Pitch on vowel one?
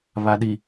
low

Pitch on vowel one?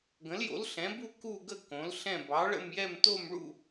rising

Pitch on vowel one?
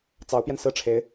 rising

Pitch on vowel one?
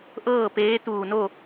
falling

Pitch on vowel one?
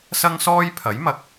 high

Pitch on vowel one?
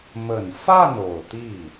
low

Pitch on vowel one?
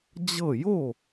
falling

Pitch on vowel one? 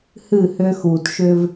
falling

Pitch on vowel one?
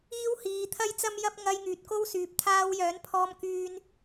high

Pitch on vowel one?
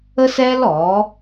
high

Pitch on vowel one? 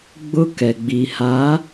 high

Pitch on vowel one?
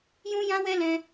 high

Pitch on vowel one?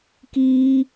high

